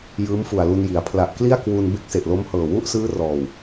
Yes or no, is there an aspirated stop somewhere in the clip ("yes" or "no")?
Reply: yes